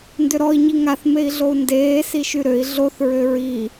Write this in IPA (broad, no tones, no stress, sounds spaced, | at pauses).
n d ʏ ɾ ɔ i̯ ɲ i ŋ a θ m e i̯ ɮ o u̯ n d eː s i ʃ y ɾ ø i̯ ɮ o θ ɹ ø ɹ i